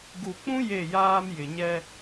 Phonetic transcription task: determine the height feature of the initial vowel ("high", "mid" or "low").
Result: high